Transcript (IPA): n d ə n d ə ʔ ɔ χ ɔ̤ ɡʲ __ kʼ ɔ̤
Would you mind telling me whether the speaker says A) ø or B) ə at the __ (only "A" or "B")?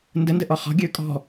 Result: A